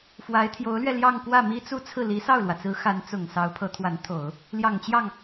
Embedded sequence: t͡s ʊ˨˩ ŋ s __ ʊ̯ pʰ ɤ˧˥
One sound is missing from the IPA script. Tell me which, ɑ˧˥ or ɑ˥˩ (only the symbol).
ɑ˧˥